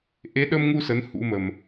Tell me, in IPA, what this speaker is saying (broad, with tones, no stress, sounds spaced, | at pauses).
ʔ e˨˦ ɗ ə˧ m ŋ u˧ s ə˨˦ n h ṵ˧˥ m ə˨˩ m